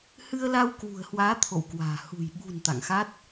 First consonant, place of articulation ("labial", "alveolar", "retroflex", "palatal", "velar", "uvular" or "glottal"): glottal